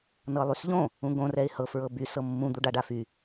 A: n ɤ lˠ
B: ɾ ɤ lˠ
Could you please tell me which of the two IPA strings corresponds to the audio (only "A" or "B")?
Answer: A